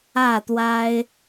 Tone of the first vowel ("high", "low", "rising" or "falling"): falling